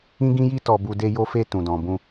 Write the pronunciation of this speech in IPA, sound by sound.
ĩ˦ ɡ ĩ˦ j i˦ t ɔ˧ b u˧ d e˧ j o˧ f e˧ t ũ˨ d ɔ̃˨ b ũ˧

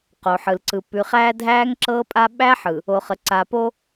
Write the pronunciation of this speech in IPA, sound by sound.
q o˨ ħ ɯ˨ l ǀ ɯ˨ p ʉ˨ χ æː˦ dʱ æː˦ ŋ ǁ ɤː˦ pʼ a˦ ɓ æ˦ ħ ɯ˨ | o˨ χ ə˨ ǀ a˨ p o˦

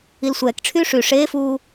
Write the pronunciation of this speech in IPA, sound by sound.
i l sʷ ɛː k ʈ͡ʂʰ yː ʂ y ʂ eː f uː

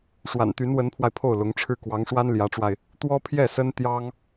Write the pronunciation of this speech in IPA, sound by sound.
ʂ w a̰˨˩ n t̪ y˧˥ n w ə˧˥ n pʰ w a˧ ɪ̯ pʰ o˥˩ ʊ̯ l ʊ˧˥ ŋ ʈ͡ʂʰ ɻ̩˥˩ k w ɑ˧˥ ŋ ʂ w a˥ n l j ä˧˥ ʈ͡ʂ w a˧ ɪ̯ | t̪ w ɔ˥ pʰ j ɛ˥˩ s ə˥ n t̪ j ɑ˥ ŋ

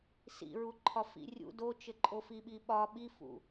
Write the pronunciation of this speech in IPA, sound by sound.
s ḭ ɹ u ǃʰ ɒ f ḭ rʲ ṵ d o t͡ʃ ɘ ǃʼ o f i ɓ i ɓ ɒ ɓ i f ṵ

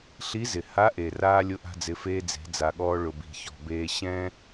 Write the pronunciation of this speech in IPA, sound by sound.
ɬ i˧˥ z ɪ˩ h a˧˥ ʔ e˩ r aː˧ lʲ ʊ˧˥ ʔ a̤˧ d͡z ɪ˩˧ f eː˧ d͡z e̤˩˧ d͡z a˩ ɠ ɔː˧ ɭ ʊ˩ b i̤˩ ç ɔ̤˩ b eː˧ ɕ ɛ̃˥

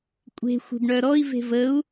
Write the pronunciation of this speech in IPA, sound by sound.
kʷʼ e̤ xʷ e̤ b ɳ œ ɾ ɔ i̯ v e̤ v ə u̯

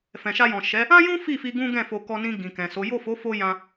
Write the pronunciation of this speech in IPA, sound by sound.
f ɛ̃˨ ʃ a˧ j ɔ̃˨ ʃ ɛ˨˦ | ã˦ j ũ˦ f i˦˨ f i˧ ɡ ũ˦ ɡ ɛ̃˦˨ f o˧ k ɔ˧ n ĩ˧ ɡ ĩ˨ k ɛ̃˨ s o˨˦ j o˦˨ f o˨˦ f o˧ j ã˧

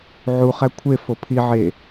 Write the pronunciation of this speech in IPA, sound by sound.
ʕ u χ æ kʷʰ e f o pʰ i ʕ e

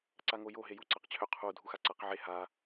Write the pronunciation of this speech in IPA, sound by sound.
ǀ a ŋ o j o ɦ e j u ǀ a q t͡ɕʰ ø qʰ u dʱ u x a ǀ a q ʕ e h a

